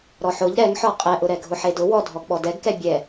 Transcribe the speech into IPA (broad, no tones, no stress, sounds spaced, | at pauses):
ɾ ɔ ħ ʊ ʎ ɾ ɛ ŋ ħ ɔ qʼ ɛ ʔ ʊ ɾ ɛ ɡʱ ʊ ħ e d ʊ w ɔ dʱ ɔ ɡ ɓ ɔ d ɛ ɡ k ɛ bʲ ɛ